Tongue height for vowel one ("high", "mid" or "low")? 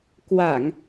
low